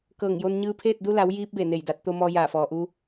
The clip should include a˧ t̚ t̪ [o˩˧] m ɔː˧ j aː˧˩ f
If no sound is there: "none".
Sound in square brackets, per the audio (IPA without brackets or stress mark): o˧